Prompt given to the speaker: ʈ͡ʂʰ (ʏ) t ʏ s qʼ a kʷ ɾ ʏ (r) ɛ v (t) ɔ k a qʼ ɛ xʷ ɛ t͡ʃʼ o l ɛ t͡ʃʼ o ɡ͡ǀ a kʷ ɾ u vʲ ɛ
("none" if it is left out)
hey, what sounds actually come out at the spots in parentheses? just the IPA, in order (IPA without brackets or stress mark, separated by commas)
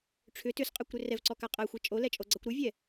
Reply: ʏ, r, ǀ